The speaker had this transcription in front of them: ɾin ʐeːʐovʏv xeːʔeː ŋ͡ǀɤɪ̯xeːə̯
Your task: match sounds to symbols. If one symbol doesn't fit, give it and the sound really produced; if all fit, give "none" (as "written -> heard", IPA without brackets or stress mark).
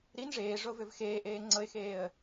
none